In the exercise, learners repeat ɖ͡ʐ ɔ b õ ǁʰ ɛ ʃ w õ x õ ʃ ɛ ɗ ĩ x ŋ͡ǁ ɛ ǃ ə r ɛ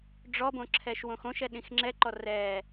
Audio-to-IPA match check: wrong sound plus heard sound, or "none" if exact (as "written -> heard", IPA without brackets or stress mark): ə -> ɔ